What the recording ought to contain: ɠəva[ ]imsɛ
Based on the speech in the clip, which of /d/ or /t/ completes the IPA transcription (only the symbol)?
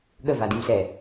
d